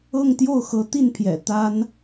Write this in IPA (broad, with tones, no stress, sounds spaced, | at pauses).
ɤ˥˧ ŋ t̪ j o˥˩ ʊ̯ x ɤ˧˥ t̪ i˥˩ n pʰ j ɛ̰˨˩ t̪ a˥ n